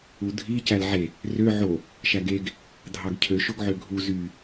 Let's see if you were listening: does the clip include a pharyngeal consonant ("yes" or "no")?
yes